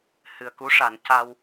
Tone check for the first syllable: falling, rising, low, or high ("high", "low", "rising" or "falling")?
low